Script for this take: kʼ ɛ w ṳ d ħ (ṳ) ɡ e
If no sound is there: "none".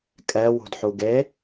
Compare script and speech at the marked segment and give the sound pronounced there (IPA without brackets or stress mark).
u